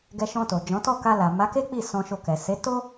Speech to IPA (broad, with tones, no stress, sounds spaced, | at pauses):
ɡ ɛ˧ ʃ ɔ̃˧ t o˨ d͡ʒ ɔ̃˨˦ t ɔ˦˨ k a˧ l a˨ m a˨˦ k e˦ k͡p i˦˨ s ɔ̃˧ ʃ o˧ k ɛ˨ s e˨˦ t o˦